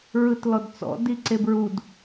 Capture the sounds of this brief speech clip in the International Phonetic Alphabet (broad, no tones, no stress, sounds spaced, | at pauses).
ɹ ɯ t l ɔ d t͡s ɔ̰ d i ǀ e b ɹ u d